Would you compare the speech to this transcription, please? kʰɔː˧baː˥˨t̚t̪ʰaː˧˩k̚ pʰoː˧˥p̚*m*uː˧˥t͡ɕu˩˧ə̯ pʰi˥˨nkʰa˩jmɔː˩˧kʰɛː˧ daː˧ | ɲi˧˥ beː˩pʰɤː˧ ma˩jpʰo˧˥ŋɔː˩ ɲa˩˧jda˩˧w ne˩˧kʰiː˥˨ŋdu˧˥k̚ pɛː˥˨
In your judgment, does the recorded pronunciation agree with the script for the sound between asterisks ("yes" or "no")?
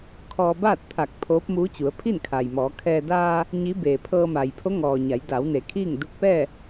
yes